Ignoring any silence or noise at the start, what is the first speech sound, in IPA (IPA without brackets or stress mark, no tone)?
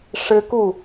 ʂ